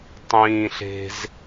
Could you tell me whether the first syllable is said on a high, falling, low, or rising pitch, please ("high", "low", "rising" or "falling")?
high